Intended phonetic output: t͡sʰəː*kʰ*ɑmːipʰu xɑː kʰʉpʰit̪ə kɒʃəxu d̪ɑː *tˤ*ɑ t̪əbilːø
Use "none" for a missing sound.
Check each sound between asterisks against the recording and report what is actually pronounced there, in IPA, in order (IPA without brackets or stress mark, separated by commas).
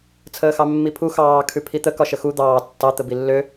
x, tː